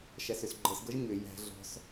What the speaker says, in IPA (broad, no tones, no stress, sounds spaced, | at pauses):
ʃ æ s ʏ s ɡ͡ǃ ɤ s ɡ ɤ ʒ ɲ ʏ j æ̤ ɮ ɔ̤ s